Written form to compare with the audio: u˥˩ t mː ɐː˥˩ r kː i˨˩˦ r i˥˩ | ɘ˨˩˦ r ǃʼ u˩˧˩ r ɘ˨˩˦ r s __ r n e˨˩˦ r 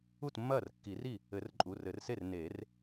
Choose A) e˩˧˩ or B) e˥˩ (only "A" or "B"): B